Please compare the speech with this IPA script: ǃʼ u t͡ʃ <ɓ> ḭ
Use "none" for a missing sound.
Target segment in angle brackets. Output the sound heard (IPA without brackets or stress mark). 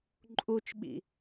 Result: ɓ